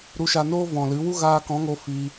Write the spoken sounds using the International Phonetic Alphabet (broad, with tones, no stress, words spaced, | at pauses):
ɾu˧ʃa˧noː˦ vɔ̃˨lɨ˨˦wu˦ ɣaː˧kɔ̃˨˦ŋo˧ fi˧